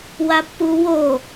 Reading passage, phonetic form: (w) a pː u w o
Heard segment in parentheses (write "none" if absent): w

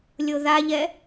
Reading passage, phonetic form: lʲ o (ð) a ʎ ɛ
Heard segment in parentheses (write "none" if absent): ð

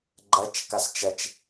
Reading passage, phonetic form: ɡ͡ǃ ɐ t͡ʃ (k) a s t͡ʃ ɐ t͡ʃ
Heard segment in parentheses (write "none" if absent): k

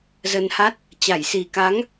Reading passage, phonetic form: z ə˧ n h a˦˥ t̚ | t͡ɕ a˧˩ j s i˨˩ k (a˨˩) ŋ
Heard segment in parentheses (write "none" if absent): a˨˦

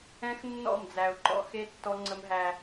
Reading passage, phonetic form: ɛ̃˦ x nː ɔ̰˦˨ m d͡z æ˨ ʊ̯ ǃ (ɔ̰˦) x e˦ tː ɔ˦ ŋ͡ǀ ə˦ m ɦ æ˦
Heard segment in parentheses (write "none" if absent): ɔ̰˦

